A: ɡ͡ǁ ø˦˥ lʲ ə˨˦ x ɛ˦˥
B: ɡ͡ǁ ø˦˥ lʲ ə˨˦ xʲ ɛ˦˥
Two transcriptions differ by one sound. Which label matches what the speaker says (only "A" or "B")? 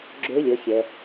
B